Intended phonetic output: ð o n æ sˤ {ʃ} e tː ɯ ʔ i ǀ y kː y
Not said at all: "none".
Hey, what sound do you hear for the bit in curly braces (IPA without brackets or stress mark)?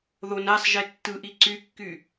ʒ